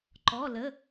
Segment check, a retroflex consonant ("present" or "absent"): absent